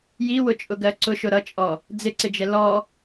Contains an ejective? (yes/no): yes